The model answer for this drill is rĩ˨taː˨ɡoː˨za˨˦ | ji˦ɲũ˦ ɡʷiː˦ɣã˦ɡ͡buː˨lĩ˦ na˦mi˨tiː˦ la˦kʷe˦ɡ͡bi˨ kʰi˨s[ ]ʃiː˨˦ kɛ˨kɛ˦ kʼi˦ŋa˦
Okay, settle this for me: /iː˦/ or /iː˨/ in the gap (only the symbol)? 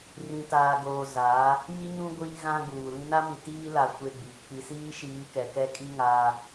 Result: iː˦